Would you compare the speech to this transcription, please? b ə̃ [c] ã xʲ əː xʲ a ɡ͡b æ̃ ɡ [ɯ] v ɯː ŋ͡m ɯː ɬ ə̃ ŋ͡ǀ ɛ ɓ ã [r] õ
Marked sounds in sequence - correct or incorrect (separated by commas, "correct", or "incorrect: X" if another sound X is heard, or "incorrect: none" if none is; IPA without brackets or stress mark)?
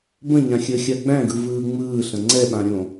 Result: incorrect: ɲ, correct, incorrect: ɾʲ